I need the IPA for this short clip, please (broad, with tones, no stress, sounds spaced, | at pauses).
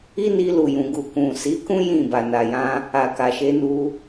i˦ n i˧ l u˨ j ũ˨ ɡ u˨ k ũ˨ s i˨˦ k ũ˦ j ĩ˦˨ b a˨ n a˨ j ã˧ | a˨ k a˨ ʃ e˨˦ n u˧